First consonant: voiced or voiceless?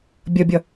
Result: voiced